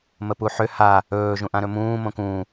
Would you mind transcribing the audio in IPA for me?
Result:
məpuħʏ ha | ɵː ʒũʔãɾɵmũː mõkũː

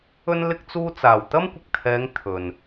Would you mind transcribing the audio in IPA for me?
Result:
ɵ˧n lɪ˧k̚t͡suː˧t͡saː˨˩w t̪ɐ˥mkʷɪ˨k̚t̪ʰɛː˨˧ŋ t̪ʰɵ˨n

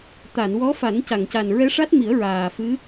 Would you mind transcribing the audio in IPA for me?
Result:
t̪a˨˩˨nwɔ˧˥ fa˨˩˦nca˨˩˨ŋca˨˩n ɹɛ˧˥ʂa˦˥t̚mi˨˩˦ə̯ ɹaː˨˩fɨ˧˥

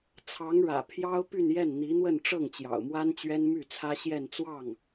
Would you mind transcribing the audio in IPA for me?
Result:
t͡sʰɑ˧˥ŋɻä̰˨˩ pʰjɑ˥ʊ̯ py˥˧njɛ˥˩n n̪i˧˥n̪wə˥˧nʈ͡ʂɤ˥˩ŋ t͡ɕjɑ̰˨˩ʊ̯mwa˥n t͡ɕɥɛ˥nmy˥˩t͡sʰä˥ ɕjɛ˥˧n t͡swɑ˥˩ŋ

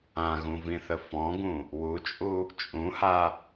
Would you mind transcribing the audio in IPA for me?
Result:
ãɣũvĩθə fɔ̃ɡũ | wut͡ʃʼu | t͡ʃʼũha

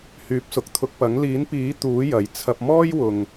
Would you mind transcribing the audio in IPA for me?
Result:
hyː˨˥p̚sʊ˨k̚t̪ʰʊ˧k̚pɐ˨˥ŋ liː˨˥npiː˨˥ t̪uː˨˥ jɐ˨j t͡sʰɐ˧p̚mɔː˥jwʊ˨ŋ

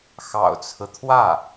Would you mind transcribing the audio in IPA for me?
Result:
xɑ̰˨˩ʊ̯t͡sʰɹ̩˦t̪ʰwä˥˩

